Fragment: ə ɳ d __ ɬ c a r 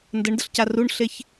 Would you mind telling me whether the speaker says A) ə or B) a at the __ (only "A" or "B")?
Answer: A